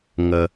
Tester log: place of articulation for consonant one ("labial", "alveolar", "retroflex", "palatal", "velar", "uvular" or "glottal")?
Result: velar